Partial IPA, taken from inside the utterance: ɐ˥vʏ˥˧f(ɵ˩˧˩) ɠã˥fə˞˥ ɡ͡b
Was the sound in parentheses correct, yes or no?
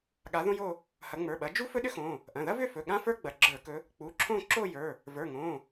yes